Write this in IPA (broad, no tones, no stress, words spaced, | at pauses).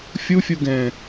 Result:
fʲufʲuɡɛ̃ː